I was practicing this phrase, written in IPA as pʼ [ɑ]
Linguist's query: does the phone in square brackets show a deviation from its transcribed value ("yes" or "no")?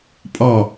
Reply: no